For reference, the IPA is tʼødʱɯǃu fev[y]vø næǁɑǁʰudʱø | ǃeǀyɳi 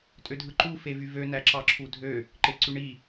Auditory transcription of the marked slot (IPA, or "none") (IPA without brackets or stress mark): y